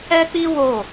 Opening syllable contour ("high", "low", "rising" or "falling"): high